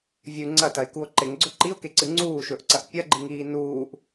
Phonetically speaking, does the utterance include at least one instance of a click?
yes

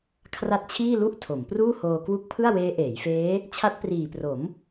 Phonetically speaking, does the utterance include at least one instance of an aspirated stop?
yes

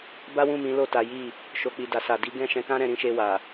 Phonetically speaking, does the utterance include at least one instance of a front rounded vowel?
no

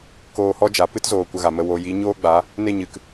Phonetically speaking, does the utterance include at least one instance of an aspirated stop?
no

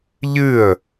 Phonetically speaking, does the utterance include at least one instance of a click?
no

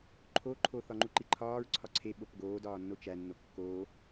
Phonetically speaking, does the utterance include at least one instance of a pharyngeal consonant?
no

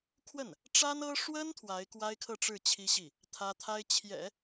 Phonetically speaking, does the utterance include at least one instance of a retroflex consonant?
yes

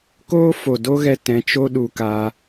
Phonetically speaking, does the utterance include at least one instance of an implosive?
yes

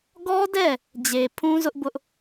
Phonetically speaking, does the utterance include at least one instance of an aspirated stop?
yes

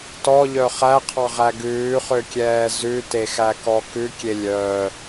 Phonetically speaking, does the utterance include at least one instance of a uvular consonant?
yes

